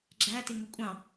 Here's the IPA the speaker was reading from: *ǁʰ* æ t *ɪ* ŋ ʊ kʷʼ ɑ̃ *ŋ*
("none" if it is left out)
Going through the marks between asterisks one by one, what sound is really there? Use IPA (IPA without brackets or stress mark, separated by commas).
ɡ͡ǁ, ɪ, none